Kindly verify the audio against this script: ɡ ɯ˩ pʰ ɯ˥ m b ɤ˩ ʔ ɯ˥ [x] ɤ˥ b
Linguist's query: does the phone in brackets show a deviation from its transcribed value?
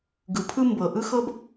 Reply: no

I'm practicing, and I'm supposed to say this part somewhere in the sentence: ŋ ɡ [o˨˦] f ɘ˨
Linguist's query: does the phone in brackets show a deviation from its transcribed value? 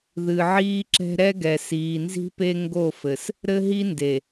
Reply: yes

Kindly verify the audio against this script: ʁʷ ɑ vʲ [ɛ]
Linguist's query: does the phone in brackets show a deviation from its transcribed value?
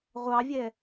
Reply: no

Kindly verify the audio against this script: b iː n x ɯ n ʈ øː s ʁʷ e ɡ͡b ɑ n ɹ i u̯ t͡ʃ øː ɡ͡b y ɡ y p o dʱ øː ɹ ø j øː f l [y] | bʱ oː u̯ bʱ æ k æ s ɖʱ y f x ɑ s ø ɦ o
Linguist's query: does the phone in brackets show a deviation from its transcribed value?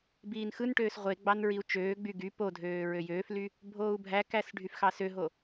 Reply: no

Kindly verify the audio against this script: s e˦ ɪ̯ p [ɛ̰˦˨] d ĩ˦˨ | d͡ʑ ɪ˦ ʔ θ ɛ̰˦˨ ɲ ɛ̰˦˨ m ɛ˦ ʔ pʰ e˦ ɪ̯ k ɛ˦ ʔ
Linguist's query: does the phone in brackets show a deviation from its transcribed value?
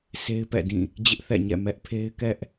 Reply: no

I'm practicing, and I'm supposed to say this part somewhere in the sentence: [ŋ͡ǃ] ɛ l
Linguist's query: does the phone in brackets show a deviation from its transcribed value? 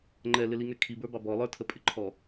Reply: no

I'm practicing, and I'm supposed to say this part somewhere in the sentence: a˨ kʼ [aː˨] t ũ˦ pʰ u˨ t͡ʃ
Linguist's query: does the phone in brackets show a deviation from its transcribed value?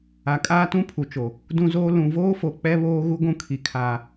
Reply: yes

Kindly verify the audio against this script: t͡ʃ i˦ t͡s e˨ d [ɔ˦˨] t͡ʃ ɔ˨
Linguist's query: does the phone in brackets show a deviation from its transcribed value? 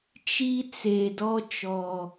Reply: yes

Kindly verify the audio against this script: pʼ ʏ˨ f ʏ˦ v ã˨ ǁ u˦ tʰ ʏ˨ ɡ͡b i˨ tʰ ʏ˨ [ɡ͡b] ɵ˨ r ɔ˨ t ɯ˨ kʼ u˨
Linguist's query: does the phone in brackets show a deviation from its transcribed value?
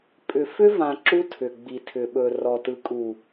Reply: yes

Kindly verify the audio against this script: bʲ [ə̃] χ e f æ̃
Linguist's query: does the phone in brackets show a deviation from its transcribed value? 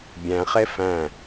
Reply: yes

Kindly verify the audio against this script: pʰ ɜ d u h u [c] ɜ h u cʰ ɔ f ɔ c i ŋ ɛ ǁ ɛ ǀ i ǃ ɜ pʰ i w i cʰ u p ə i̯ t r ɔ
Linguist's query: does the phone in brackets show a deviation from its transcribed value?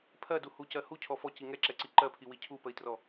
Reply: no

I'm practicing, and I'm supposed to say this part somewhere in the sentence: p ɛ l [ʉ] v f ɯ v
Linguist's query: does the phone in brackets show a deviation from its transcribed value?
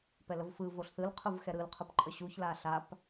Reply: yes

